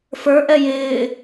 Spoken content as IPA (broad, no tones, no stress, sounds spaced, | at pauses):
f ə˞ ʔ ɛ j ɪː